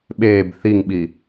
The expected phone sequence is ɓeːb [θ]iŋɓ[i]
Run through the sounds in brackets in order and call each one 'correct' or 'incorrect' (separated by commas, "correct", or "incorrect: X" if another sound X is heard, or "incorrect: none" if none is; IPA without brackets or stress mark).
correct, correct